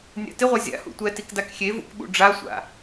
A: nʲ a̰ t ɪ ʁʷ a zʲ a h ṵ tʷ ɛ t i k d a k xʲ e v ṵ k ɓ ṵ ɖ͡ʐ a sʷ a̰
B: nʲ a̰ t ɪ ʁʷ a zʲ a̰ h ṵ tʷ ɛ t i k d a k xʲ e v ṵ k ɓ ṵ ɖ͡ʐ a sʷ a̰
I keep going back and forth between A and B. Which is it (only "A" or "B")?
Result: B